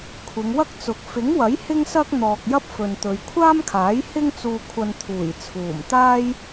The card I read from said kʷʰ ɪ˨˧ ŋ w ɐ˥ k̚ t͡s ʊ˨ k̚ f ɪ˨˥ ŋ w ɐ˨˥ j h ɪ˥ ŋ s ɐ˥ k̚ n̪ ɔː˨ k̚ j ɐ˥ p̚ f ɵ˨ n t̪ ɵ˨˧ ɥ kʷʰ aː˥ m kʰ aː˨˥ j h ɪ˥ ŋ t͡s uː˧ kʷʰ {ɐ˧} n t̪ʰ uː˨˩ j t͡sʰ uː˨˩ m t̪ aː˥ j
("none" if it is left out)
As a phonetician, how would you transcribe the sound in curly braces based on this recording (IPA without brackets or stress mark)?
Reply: ɐ˧